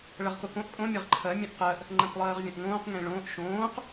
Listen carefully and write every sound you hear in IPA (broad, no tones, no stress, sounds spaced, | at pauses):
ɭ ɐ ʁ k o k õ ʔ kʼ õ mʲ ɐ ʁ ǃʰ ɜ mʲ œ̃ ʔ q ɜ ʔ | ŋ͡ǃ ɐ̃ k lˠ ɜː ʁ vʲ ɐ̃ ʔ ŋ õː q ŋ ẽ ɭ õː ʔ ʃ õː q